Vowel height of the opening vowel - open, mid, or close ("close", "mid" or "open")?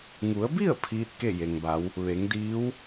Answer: close